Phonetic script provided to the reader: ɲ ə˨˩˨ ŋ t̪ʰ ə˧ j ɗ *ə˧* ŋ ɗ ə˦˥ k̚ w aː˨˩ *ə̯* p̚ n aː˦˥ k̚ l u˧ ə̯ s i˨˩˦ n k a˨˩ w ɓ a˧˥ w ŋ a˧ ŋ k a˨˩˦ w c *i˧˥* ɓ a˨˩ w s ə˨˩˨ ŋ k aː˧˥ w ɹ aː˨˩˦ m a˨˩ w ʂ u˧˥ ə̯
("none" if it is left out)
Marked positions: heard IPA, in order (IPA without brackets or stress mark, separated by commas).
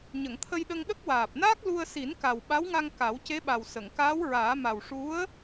ə˧, none, e˧˥